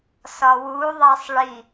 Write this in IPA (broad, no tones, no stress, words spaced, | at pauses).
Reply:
sɒwuðˤæsˤ ɭi